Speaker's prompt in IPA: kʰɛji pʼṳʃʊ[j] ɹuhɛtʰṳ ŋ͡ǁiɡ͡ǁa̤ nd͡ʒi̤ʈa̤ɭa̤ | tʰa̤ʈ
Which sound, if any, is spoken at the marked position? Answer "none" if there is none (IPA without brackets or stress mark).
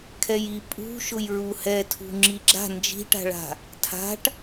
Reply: j